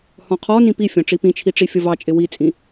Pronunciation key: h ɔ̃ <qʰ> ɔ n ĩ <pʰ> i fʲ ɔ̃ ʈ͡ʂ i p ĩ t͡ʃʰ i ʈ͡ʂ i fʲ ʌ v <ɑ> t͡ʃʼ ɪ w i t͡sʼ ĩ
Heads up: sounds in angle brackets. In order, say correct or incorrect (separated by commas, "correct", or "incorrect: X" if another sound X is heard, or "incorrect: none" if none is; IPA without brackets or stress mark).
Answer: correct, incorrect: p, correct